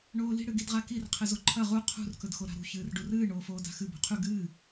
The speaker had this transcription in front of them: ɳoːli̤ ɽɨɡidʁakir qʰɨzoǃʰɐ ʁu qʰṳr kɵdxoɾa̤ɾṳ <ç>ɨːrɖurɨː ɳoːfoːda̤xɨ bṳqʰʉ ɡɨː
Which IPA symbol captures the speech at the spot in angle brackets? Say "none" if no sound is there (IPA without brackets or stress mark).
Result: ç